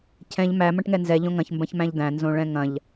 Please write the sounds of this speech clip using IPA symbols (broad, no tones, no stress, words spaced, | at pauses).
cʰɛ̃ʎ mæ mɐ̃ʈŋɛnzɛ ʎõŋɐ̃ç mbɐ̃çmæ̃ʎd̪æ̃ nzõɭɛ̃ŋɐ̃ʎ